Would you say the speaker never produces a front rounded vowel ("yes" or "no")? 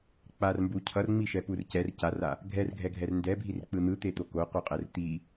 yes